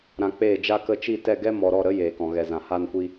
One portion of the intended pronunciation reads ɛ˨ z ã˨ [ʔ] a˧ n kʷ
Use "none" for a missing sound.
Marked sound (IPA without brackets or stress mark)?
h